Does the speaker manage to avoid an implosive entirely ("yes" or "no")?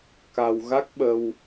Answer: no